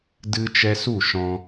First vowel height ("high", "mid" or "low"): high